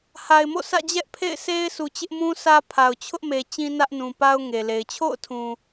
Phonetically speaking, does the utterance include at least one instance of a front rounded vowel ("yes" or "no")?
no